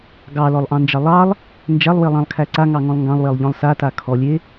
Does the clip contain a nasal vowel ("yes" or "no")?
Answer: yes